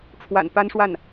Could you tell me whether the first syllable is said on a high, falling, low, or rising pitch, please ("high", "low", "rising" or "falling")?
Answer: low